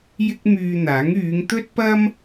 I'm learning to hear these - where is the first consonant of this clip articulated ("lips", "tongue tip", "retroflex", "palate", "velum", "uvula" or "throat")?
palate